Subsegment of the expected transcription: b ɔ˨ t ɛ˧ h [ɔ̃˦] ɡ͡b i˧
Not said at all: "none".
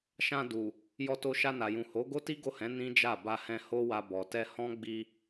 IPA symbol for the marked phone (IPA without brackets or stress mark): ɔ̃˦